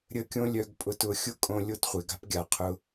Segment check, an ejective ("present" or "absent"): present